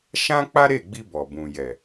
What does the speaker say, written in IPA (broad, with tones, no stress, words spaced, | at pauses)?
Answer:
ʃã˦k͡pa˦ɾe˦˨ɡ͡bi˧ bɔ˨ bũ˨jɛ˨